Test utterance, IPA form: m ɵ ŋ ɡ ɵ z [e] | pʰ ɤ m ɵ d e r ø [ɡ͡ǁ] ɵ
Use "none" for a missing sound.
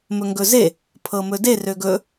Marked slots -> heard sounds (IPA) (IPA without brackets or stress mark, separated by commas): e, ɡ